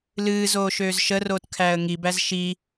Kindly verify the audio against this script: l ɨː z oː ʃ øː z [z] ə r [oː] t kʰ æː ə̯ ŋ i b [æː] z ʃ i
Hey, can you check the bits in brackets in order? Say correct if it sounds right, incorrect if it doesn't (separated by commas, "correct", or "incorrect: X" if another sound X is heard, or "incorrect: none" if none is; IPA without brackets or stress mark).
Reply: incorrect: ʃ, correct, incorrect: æ